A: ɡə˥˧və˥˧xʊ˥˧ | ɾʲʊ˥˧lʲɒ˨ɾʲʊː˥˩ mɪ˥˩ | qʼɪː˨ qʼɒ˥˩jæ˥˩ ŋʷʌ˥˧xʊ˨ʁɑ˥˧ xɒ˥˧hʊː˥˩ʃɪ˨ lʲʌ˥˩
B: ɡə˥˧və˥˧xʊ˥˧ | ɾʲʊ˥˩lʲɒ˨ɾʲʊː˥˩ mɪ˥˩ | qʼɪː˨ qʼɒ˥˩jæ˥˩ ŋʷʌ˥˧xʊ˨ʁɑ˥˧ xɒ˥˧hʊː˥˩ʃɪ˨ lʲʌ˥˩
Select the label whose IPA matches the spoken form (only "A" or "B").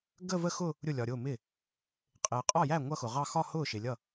B